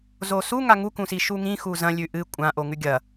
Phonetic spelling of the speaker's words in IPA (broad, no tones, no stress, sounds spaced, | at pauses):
z o s u ŋ a ŋ u k ũ s i ʃ u ŋ ĩ x u z ɐ̃ lʲ ʉ ʔ ɨ kʷʼ ã ʔ o ŋ ʉ ɡʲ ɐ